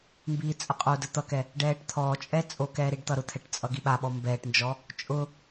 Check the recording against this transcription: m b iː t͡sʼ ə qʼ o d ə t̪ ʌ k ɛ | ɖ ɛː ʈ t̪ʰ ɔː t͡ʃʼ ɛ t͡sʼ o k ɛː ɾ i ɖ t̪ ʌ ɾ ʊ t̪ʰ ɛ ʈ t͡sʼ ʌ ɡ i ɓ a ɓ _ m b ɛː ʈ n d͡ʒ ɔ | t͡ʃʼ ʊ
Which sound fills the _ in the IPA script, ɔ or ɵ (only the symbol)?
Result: ɔ